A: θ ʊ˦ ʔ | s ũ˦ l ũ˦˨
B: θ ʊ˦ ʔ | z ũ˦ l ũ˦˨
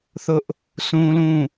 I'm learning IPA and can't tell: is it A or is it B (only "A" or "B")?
A